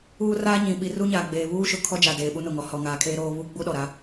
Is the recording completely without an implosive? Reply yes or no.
no